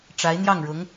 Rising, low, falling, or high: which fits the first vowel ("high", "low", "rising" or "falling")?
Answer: rising